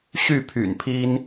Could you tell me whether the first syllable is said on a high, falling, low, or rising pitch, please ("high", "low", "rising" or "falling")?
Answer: falling